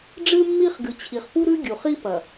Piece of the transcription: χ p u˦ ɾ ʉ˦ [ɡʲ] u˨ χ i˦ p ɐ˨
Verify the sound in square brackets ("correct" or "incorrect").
correct